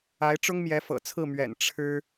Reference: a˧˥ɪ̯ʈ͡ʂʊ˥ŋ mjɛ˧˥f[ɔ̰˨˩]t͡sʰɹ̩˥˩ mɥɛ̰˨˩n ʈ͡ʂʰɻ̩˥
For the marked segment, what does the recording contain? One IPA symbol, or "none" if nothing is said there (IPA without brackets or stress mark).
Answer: ɤ̰˨˩